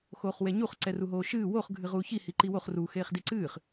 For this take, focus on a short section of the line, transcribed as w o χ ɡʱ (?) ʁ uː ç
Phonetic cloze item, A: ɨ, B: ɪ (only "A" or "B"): A